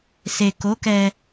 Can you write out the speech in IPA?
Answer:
s e˨ k o˨˦ k ɛ˧

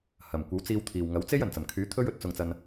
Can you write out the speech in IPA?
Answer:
h ɐ˨˩ m kʷ ɐ˨˥ w t͡s iː˧ w t̪ʰ iː˨ w ŋ ɐ˨˥ w t͡s e˥ j ɐ˨˩ n t͡s ɐ˨˩ m kʰ yː˨˥ t̪ʰ ɵ˥ ɥ ɵ˨ t̚ t͡s ʊ˧ ŋ t͡s ɐ˧ n

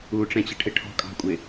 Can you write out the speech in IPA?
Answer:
u ʈ͡ʂ ɛ̃ t͡ɕ ə ʈʰ ɪ ʈʰ ɔ̤ kʼ ɑ̤ kʷʼ ɪ

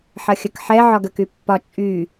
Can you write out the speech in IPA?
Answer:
ħ ɐ xʲ ə k ħ ɛ ʕ ɒ ɡ ə k y pː ɒ t͡ʃʼ y

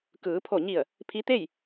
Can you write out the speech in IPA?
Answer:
k ɯː˩˧ pʰ o˧˩ ɲ i˧˩ ə̯ | pʰ i˧˥ t̪ e˥˨ j

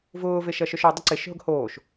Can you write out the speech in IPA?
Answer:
v ʊː v e ʃ ɐ ʃ œ ʃ ɔ dˤ ə ǀ e ʃ ɦ ʊ ɡ h oː ʃ

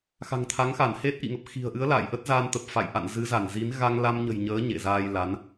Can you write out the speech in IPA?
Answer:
x a̤˨˩ ŋ t̪ʰ a˨˦ ŋ x a˧˩ n h e˦˥ t̚ ʔ ḭ˧˨ ŋ ə˨˩ p̚ x i̤˨˩ ə̯ ʔ ɨ˨˦ ə̯ l a̰ː˧˨ j ʔ ə˦˥ t̚ z aː˧ n t̪ ə˨˩ p̚ f a̰˧˨ j ʔ a̰˧˨ n z ɨ˨˦ z a˧˩ n z i˨˦ n ɣ a˧ ŋ l a˧ m ɲ ə̤˨˩ j ɲ əː˨˦ ɲ ḛ˧˨ z aː˧ j l a˨˦ n

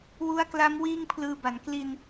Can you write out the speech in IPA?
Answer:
w u˦˥ a̯ k l a˦˥ m w iː˥˩ ŋ pʰ l ɯː˧ b a˩˦ n k l i˧ n

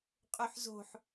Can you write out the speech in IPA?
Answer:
qʼ ø ħ z o̤ ħ

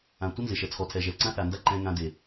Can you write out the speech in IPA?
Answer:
ã˨ tʷ ɪ˦ n z ɪ˨ ʃ ɛ˨ t͡sʰ ɔ˨ tʰ ɛ˨ ʒ ɛ˨ ǀ ã˦ θ a˨ n d a˦ ǃ ɛ̃˦ ŋ ã˦ d e˨

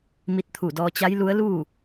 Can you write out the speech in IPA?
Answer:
m i˧ t̚ t̪ʰ u˧˩ d ɔː˧ t͡ɕ a˧˥ j l u˧˥ ə̯ l uː˥˨

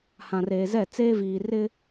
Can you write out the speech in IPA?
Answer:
h ã˨ r eː˨ z ɛ˦˨ t͡s eː˦ v iː˨ r ɪ˦

